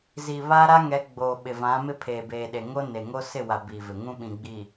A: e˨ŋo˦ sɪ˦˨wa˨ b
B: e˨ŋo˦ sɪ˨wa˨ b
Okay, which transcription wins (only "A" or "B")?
A